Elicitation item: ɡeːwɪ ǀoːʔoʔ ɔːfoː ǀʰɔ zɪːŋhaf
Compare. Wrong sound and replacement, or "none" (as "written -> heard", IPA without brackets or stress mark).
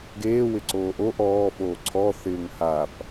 z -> θ